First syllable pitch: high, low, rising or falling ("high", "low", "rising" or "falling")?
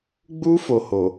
high